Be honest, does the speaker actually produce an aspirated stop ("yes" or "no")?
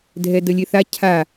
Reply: yes